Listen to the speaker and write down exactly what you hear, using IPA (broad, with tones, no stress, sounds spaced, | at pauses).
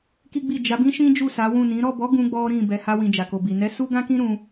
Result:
k i˦ ɡ͡b i˦˨ d͡ʒ a˨˦ b ĩ˦ ʃ ĩ˦ d͡ʒ u˦˨ s a˨˦ w ũ˦˨ n ĩ˨˦ ɾ ɔ˦˨ b ɔ˨˦ ɡ ũ˦ ɡ͡b ɔ˦ ɾ ĩ˦˨ b ɛ˧ h a˧ w ĩ˨ d͡ʒ a˨ k o˨ b i˨ n ɛ˨˦ s u˦ ɡ ã˦ k ĩ˦ ɾ ũ˧